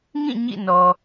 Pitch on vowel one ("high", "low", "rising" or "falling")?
falling